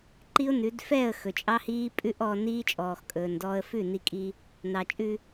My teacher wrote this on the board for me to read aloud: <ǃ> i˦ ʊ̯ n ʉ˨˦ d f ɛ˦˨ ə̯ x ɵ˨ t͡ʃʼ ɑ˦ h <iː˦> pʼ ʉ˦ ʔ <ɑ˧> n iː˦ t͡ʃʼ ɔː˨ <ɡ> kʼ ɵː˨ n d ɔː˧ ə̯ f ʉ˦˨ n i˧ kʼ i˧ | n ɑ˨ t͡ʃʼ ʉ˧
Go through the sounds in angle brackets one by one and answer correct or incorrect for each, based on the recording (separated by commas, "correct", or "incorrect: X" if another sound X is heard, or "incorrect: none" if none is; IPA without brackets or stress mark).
correct, correct, incorrect: ɔ˧, incorrect: x